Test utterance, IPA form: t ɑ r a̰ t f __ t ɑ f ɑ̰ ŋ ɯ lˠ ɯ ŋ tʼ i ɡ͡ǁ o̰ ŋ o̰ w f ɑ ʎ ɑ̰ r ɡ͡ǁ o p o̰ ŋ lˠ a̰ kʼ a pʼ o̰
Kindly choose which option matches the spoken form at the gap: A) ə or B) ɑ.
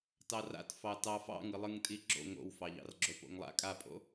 B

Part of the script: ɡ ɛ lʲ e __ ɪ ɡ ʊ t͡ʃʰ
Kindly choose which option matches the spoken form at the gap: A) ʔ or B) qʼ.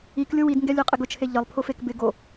B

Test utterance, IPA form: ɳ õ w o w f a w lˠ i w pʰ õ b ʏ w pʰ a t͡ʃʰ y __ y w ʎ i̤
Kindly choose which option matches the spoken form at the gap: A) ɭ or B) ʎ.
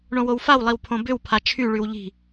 A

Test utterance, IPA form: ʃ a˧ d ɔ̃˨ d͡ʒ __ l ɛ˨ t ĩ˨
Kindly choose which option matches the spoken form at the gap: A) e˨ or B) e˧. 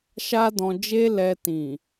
B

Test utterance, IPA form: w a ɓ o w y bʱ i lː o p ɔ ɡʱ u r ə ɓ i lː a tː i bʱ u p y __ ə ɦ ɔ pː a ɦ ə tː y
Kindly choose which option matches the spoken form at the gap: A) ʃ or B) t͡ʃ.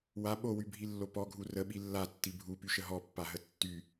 A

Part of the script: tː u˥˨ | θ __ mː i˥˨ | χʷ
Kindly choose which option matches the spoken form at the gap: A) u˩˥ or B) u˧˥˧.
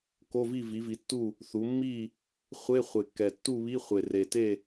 A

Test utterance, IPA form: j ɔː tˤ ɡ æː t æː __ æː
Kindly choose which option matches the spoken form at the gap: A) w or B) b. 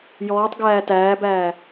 B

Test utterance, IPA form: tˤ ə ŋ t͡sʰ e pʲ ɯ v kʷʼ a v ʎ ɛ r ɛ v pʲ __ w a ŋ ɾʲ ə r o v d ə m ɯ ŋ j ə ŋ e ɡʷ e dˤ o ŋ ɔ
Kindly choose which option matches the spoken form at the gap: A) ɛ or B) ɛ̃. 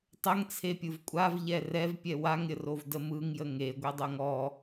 A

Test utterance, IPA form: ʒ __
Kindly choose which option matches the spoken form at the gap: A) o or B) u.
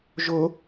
A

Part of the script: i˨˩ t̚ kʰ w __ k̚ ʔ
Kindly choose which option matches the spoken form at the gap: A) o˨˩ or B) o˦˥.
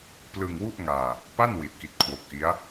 A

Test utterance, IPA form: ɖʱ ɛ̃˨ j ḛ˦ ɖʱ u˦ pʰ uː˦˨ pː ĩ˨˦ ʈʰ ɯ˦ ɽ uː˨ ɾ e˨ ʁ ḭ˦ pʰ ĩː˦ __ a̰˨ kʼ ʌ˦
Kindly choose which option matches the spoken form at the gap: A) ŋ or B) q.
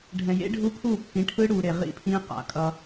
B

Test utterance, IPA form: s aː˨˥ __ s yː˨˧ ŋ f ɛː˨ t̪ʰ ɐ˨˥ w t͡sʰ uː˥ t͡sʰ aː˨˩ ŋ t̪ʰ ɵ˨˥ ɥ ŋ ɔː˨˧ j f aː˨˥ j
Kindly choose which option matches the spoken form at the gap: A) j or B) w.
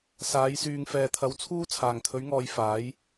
A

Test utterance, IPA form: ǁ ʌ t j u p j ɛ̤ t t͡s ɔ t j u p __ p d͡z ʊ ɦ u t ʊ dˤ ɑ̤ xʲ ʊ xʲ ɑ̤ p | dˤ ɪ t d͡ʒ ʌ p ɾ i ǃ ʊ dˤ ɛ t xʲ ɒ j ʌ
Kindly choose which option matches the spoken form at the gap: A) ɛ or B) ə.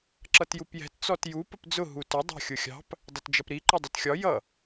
B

